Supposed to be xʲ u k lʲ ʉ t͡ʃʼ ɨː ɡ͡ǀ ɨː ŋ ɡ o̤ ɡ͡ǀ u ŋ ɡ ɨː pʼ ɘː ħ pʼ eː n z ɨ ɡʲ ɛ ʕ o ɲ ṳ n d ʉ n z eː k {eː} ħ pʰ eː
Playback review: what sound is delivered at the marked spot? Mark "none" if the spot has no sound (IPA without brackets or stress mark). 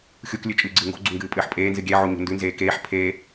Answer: eː